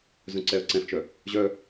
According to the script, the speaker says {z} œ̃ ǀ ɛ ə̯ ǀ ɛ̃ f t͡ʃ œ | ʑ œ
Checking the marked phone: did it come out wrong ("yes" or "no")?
no